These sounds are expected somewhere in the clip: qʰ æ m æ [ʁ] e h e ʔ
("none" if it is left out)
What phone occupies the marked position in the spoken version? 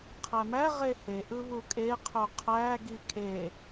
ʁ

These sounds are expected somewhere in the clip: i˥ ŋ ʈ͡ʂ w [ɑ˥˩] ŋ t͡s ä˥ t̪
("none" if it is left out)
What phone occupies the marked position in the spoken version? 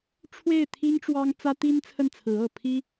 ɑ˥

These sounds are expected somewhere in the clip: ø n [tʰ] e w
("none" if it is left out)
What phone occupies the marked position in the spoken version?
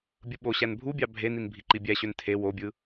tʰ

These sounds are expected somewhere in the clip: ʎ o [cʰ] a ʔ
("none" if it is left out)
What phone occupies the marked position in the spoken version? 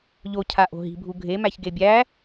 cʰ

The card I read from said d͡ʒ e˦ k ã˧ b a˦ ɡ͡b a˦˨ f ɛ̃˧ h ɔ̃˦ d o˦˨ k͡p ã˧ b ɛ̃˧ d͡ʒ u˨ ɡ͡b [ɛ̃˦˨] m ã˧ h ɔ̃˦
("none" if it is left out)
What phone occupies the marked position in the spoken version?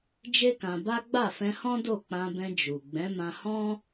ɛ̃˨˦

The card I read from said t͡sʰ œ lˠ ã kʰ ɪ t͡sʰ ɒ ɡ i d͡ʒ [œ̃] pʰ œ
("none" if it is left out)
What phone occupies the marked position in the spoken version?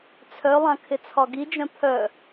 œ̃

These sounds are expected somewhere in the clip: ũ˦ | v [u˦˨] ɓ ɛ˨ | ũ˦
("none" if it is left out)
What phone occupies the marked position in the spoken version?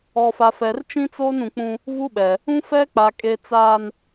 u˦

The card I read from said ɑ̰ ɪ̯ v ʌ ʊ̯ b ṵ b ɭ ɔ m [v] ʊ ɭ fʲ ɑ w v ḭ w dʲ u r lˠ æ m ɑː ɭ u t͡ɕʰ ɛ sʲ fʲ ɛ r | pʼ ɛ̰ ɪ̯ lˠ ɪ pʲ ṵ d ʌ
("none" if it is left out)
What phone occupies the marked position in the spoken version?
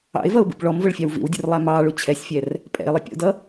v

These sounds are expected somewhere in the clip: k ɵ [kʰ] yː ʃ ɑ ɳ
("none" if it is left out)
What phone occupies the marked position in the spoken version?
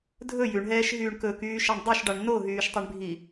k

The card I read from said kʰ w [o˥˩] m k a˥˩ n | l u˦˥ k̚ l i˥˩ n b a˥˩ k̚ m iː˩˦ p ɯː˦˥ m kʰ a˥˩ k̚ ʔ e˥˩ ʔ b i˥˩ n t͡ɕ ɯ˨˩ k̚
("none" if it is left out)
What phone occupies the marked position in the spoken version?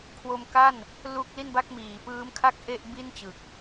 o˧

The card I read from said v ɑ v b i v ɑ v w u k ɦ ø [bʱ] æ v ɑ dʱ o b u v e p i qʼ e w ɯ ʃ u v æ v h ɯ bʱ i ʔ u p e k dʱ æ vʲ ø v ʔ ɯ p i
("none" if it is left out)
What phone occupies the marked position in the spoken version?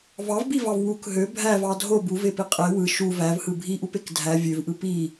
bʱ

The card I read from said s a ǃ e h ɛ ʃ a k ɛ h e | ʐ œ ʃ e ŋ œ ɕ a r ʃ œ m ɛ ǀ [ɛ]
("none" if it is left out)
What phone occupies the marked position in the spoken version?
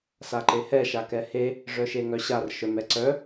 œ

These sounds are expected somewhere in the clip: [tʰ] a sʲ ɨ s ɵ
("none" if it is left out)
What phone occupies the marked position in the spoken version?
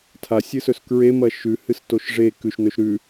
tʰ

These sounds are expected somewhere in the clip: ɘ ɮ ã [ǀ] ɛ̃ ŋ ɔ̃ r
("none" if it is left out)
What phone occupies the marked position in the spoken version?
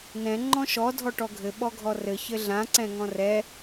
ǀ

